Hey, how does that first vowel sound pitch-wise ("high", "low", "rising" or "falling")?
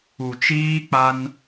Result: low